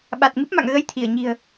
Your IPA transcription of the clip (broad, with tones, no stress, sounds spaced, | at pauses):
ɓ a˨˩ t̚ ŋ ɨ˦˥ p̚ m a̰˧˨ ŋ ɣ ə˧ j t̪ʰ i˧˩ ə̯ ɲ i̤˨˩ ə̯